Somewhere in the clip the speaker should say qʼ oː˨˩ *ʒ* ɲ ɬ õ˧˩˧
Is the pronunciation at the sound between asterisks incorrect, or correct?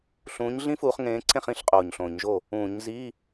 incorrect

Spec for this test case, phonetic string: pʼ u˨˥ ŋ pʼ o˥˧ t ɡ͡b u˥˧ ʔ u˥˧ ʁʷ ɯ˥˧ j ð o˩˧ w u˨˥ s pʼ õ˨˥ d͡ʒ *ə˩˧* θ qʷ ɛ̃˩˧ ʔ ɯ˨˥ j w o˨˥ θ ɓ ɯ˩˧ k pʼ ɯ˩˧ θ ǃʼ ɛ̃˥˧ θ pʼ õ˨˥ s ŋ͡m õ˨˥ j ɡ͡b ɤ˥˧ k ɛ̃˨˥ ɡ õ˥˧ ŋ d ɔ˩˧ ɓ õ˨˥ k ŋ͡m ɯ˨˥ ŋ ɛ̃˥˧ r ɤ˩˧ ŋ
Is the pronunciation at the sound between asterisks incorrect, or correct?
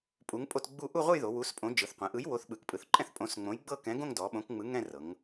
incorrect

